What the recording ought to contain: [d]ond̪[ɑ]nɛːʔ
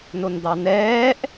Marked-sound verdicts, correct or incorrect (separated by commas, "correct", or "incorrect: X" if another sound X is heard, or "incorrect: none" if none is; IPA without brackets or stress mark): incorrect: n, correct